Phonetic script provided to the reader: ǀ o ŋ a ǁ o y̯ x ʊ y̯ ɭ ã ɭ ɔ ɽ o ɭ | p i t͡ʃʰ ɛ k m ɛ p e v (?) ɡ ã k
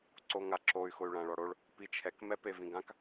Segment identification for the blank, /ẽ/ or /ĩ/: ĩ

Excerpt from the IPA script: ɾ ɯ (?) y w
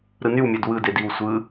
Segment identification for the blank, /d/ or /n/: n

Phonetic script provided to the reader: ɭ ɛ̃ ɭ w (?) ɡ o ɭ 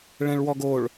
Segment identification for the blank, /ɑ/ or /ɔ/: ɔ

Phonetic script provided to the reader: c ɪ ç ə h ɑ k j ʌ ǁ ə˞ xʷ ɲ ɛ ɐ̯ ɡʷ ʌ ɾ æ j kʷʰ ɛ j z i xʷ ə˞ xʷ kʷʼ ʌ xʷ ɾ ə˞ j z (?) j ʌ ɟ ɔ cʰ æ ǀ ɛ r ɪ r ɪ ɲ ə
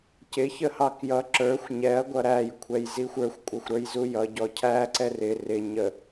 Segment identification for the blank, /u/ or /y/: u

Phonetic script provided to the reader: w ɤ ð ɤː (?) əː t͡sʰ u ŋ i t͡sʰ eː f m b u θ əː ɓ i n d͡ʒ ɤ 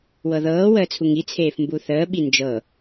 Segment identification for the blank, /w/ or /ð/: w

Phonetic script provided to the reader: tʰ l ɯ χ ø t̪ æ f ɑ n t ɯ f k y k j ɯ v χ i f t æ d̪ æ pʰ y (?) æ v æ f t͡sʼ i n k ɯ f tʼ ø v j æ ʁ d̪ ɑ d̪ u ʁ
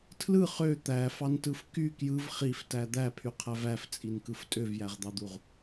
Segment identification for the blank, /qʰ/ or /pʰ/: qʰ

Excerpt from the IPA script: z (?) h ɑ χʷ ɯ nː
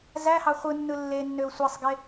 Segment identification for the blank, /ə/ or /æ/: æ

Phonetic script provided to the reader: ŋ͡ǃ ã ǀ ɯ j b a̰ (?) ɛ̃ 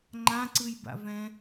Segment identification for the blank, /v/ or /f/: v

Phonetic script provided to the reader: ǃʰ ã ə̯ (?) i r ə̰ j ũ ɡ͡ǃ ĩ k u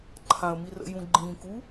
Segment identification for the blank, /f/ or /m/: m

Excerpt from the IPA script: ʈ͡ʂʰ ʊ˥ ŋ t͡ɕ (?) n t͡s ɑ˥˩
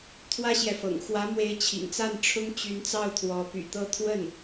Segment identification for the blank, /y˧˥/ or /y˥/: y˧˥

